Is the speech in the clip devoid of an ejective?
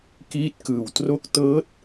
yes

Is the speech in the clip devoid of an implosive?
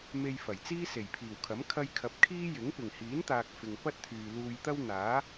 yes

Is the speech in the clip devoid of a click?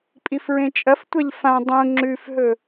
no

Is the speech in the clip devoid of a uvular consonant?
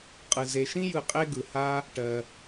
no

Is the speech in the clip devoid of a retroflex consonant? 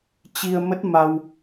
yes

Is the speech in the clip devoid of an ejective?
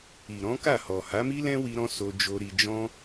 yes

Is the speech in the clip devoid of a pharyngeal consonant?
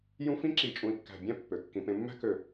yes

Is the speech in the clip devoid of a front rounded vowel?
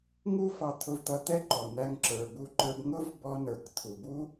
yes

